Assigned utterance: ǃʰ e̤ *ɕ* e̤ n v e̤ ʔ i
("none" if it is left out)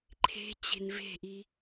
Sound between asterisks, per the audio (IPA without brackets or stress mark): t͡ɕ